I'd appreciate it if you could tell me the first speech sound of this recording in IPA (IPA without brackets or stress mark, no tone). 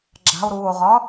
ɡ͡ǁ